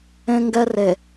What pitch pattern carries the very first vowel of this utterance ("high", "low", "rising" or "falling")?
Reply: high